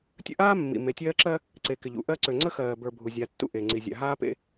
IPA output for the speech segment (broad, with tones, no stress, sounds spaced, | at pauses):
tʲ ə̰˦ ʔ aː˦ mː ḭ˨ m e˨ tʲ ɜː˦ ǁ ɜ˦ | ǀ e˨ k ɪ˨ ʎ ṵ˨ ʔ ɜ˦ ǀ ø˨ ŋ͡ǀ ə˦ x ɜː˨ b ə˞˨ bʱ u˨ zʲ a˨ tː ṵ˦ ʔ e˨ ŋ͡ǀ i˨ zʲ a̰˨ ɦ aː˦ p ḛ˦